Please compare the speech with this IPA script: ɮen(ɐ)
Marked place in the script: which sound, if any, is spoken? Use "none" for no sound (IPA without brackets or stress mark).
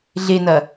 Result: ɐ